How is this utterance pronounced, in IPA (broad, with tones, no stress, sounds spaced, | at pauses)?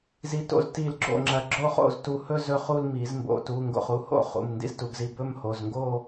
z i˧˩ t o̰˥˧ z t i˧˩ l ɡ͡ǁ o̰˥˩ ŋ͡ǁ ɐ˧˩ ɡ͡ǁ o˥˧ χ o̰˥˩ z t u˧˩ h ɵ˥˧ z ɵ˥˩ χ u˥˧ l m i˨˩˦ z m b o̰˩˧˩ t u˩˧˩ ŋ ɡ o̰˧˩ χ u˩˧˩ h o̰˥˩ χ ṵ˩˧˩ m n d ḭ˥˩ z t u˩˧˩ ɡ z i˧˩ b ɵ˥˧ m h o˩˧˩ z ŋ ɡ o˥˧